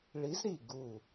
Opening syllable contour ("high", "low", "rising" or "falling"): rising